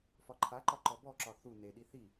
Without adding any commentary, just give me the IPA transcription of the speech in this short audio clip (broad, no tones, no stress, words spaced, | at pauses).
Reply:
fɒǃʰaǃɒ ǃɔbɔǁɒ θu neɗi θi